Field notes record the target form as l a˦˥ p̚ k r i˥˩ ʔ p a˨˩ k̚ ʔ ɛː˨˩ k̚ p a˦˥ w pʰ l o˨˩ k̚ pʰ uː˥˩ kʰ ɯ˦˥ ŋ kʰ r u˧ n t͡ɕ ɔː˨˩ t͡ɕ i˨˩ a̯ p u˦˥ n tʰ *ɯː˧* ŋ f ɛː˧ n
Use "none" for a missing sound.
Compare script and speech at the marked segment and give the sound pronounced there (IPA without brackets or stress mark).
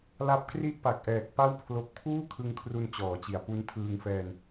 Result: ɯː˧